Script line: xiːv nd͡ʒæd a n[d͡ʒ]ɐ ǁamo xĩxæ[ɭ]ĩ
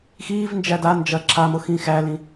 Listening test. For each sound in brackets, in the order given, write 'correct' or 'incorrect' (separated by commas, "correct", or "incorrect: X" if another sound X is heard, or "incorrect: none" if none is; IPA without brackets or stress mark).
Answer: correct, incorrect: l